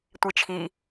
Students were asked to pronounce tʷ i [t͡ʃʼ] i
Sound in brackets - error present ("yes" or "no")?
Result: yes